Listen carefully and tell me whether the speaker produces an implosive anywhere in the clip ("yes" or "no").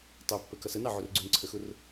no